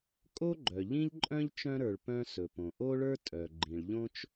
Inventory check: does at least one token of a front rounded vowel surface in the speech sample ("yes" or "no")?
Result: yes